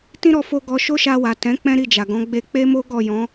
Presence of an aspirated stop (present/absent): absent